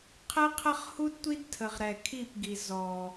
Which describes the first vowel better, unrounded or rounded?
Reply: unrounded